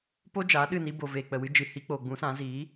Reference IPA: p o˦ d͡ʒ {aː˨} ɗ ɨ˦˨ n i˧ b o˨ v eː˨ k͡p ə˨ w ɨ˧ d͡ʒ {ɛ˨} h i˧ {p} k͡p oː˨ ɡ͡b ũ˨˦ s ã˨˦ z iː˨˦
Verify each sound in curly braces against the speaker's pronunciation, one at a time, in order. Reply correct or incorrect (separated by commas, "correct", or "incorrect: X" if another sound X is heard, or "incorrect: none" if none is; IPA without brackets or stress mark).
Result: incorrect: aː˨˦, incorrect: ɨ˨, incorrect: none